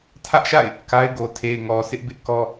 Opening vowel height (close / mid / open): open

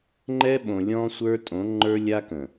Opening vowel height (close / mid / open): mid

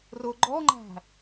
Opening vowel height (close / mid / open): close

